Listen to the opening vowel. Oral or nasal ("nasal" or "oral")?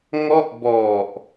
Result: oral